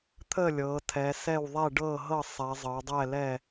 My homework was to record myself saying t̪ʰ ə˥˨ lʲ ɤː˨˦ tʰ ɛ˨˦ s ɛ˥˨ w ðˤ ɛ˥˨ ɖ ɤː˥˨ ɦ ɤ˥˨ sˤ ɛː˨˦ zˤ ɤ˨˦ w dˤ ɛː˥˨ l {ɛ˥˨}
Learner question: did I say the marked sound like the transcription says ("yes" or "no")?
no